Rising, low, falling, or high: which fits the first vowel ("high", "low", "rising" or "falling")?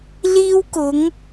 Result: high